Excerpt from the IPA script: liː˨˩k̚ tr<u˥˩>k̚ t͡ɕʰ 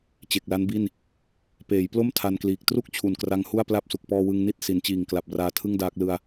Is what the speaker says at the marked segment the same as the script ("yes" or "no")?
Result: yes